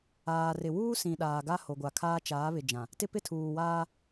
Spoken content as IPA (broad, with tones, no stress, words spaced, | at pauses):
aː˨rɪ˨wuː˦sĩ˨ ɗaː˨ɡa˦ ho˨ɡʷa˨kʰaː˦ t͡ʃaː˨˦βɪ˨d͡ʒã˨ | tɪ˦ pɪ˦tʰuː˨waː˦